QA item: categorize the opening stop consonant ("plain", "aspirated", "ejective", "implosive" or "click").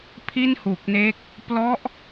aspirated